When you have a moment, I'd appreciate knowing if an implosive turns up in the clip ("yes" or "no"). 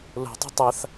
no